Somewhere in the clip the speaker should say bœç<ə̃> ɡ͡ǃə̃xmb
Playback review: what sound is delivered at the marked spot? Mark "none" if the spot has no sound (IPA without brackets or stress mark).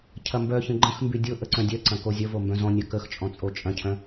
ə̃